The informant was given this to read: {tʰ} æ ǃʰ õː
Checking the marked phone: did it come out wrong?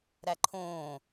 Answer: yes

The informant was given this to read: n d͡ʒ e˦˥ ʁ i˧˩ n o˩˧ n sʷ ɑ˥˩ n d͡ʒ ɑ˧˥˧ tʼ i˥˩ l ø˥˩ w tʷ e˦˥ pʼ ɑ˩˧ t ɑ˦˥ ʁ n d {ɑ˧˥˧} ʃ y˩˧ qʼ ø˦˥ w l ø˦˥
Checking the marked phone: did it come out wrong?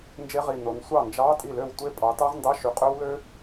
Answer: no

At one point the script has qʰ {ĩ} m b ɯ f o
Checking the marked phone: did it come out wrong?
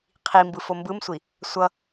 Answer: yes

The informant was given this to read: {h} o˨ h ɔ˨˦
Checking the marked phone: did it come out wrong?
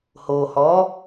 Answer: no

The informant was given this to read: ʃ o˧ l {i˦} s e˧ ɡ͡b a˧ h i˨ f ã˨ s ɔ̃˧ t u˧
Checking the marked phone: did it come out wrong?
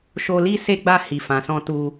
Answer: no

